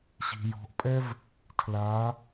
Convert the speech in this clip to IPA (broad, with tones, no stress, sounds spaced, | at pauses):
ɕ i̤˩ j ɔ̤˩˧ ʔ pʼ ɛ˥ v | tʰ l a˩˧